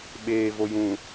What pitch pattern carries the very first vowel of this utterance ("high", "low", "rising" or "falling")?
low